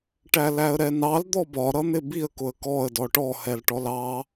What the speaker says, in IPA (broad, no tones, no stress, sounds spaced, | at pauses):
ʈ æ l æ ə̯ ɾ ɛ n ɑ l d̪ ɔ b ɒ ɾ ʌ n̪ ɪ b i ə̯ k ʊ ə̯ k ɔ ə̯ d ɔ ʈ ɔ h ɛ l ʈ ɔ l ɑ